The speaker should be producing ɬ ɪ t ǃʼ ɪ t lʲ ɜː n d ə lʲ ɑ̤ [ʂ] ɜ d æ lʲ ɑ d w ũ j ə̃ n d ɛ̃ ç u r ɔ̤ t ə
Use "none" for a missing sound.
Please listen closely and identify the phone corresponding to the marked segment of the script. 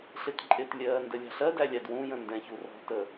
ɬ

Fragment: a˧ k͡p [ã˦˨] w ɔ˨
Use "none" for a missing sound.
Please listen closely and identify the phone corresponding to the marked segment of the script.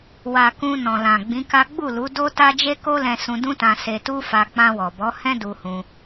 ã˧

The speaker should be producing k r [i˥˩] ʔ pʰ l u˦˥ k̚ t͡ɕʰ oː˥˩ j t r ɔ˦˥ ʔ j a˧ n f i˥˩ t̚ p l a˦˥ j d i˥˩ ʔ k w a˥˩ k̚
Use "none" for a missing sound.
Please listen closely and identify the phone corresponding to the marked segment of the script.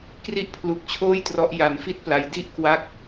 i˥˩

